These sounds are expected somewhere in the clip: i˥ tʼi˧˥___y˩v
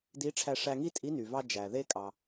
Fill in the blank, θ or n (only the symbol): n